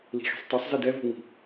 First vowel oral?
yes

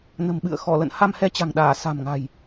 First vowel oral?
yes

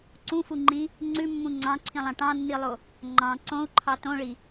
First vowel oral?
no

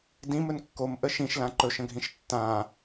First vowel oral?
no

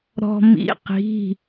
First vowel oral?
yes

